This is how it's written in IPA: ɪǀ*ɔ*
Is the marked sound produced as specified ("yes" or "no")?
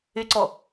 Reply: yes